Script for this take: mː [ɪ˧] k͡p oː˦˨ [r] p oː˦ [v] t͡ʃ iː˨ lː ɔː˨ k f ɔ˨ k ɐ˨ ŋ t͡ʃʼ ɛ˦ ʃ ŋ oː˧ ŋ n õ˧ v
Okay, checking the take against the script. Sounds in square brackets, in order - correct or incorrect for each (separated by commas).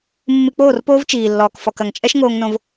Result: incorrect, correct, correct